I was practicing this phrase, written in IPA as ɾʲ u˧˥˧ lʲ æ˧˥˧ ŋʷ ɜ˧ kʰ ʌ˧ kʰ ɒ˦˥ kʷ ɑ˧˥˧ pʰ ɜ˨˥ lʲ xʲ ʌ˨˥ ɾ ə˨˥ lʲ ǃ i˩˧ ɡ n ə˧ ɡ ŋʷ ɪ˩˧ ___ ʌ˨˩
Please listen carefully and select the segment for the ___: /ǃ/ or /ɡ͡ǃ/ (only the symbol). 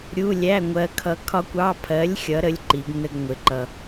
ǃ